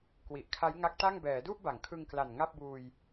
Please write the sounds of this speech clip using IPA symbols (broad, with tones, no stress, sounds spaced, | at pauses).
k w i˨˩ ʔ kʰ a˦˥ j ŋ a˦˥ k̚ t a˥˩ ŋ b ɛː˩˦ d u˥˩ ʔ b a˩˦ ŋ kʰ ɯ˧ ŋ k l a˨˩ n ŋ a˥˩ p̚ b uː˧ j